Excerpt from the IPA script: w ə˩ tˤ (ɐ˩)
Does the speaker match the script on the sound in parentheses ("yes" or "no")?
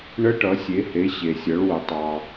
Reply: no